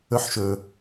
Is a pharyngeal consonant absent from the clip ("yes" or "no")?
no